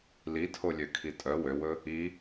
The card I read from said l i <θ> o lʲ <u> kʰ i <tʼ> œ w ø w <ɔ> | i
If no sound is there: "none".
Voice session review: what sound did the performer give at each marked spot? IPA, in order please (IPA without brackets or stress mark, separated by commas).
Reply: tʰ, ø, tʼ, ɵ